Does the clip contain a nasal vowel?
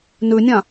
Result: yes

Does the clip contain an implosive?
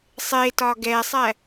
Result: no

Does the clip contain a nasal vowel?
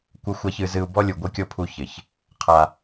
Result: no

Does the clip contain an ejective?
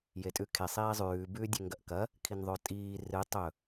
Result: yes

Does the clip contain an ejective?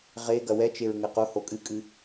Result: yes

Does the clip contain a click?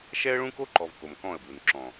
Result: yes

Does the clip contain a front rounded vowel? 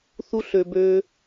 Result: yes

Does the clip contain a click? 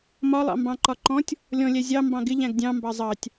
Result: yes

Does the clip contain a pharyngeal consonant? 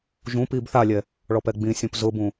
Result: no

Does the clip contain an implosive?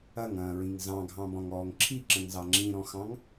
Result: no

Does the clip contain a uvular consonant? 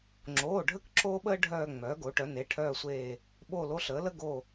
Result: no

